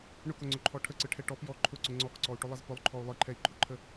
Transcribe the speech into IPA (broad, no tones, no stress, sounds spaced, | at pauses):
ɳ ʊ k ʊ ŋ͡ǀ ʊ ǃʰ ɔ ʈʰ ə ǀ ɯ ʈʰ ɛ ʈ ɔ p j ɔ ǃʰ ʊ ǀ ʊ ŋ͡ǀ ɔ k ǀ ɔ u̯ ʈ ʊ lˠ ə z p ʊ lˠ ǃʰ ɔ u̯ lˠ ɯ ǃʰ ɛ i̯ ǃʰ ʊ ǃʰ ə